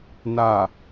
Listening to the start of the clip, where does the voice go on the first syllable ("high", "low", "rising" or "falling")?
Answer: low